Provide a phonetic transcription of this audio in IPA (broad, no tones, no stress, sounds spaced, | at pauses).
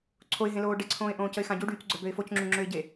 ǀʰ o ɪ̯ ɦ ẽ l oː ɖ e ǀʰ õː ɪ̯ ʔ õː c ə ɪ̯ x ã ɟ u ɖ yː c ɡ͡ǀ œ b ø ɪ̯ f o c ŋ͡ǁ u ŋ͡ǁ ø ɪ̯ ɟ e